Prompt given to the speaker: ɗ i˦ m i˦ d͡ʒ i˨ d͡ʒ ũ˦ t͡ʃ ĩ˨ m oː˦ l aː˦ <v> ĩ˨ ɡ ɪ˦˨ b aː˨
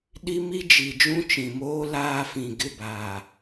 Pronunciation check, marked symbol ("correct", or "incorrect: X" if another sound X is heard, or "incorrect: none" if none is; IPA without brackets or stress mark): incorrect: f